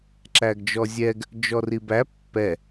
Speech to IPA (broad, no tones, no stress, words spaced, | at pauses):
ǁæɡd͡ʒɔzʲɛɡ | d͡ʒɔribæ pːɛ